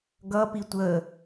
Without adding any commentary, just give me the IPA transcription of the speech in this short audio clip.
ɡʌpi tʷə

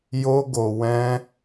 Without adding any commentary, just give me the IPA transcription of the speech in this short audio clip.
jo˧ɡo˨ wɛ̃˧

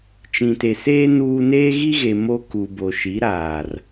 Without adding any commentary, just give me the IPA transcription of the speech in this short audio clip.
t͡ʃĩ˨te˨seː˦ nuː˦ neː˦ɣi˦ɣe˨ mo˦ ku˨ bo˨ʃi˨˦ɾaː˨r

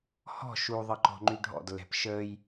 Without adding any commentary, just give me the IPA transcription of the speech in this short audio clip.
hɔ̤ ʃuðˤəǃɔ̤ŋ͡ǃy ɖʱɔ̰dlːɛ̤p ʃəːj

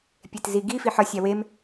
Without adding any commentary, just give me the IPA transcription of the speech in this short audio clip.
pʲetziɡi fiħɒsʲ æwem

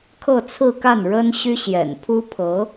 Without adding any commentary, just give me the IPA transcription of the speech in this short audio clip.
kʰɤ˥˧t͡sʰɹ̩˥˧ka˥˩n ɻə˥n ɕy˥ɕjɛ̰˨˩npʰu˥ pʰɤ˧˥

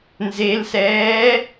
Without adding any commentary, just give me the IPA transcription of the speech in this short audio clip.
nzelsɛː

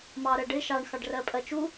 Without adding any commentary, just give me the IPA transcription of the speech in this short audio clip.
mɑɾɜɖɪ ʃɑɳ xɑɖrɜpʼɜt͡ʃu

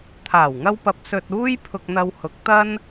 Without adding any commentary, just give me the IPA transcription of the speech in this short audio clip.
t̪ʰaː˨˩wŋɐ˧wpɐ˨p̚ sɵ˨t̚ uː˥j pʰʊ˧k̚n̪ɐ˧w hʊ˨˥k̚t̪ɐ˥n

